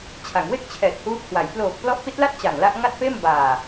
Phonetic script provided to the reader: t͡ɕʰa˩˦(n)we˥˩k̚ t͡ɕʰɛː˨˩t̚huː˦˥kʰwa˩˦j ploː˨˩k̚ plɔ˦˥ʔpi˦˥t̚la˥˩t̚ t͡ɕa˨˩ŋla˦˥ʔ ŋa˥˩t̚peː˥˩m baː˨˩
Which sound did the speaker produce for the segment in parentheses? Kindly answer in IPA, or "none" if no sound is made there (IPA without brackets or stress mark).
ŋ